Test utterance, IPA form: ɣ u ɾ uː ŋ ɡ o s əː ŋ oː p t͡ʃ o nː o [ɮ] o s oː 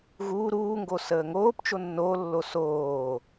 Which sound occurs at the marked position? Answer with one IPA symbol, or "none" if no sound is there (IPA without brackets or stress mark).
lː